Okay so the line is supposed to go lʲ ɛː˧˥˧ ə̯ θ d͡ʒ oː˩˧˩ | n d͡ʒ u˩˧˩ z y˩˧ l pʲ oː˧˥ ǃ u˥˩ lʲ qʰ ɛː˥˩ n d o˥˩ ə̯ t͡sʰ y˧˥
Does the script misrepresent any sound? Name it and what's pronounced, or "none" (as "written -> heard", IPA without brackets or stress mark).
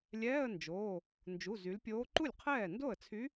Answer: θ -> n